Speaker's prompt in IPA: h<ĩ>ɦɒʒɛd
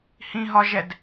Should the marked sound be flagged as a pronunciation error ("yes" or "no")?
no